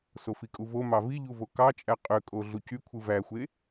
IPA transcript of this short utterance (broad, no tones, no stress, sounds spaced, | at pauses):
s o f i kʼ u v o m ɑ v i ʎ u v o k ɑ t͡ʃʼ æ qʼ ø kʼ o ɮ u c y kʷʰ ɯ v æ xʷ e